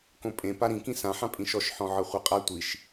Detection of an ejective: present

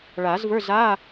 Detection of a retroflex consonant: present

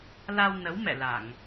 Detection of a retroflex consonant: absent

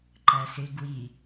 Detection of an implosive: absent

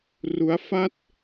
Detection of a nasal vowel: absent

